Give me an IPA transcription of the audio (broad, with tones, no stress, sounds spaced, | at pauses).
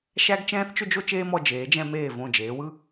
ʃ æ˥ ɡ t͡ʃ ɛ̃ː˥ θ t͡ʃ ʏ˥ d͡ʒ o˥ t͡ʃ eː˥ m ɔ˧ d͡ʒ eː˩˧ d͡ʒ ɛ̃˧ m eː˧˩ v õ˧˩ d͡ʒ eː˩˧ w ɯ˥˧